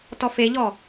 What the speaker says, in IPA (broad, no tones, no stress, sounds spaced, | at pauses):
t ɔ f e ʎ ɔ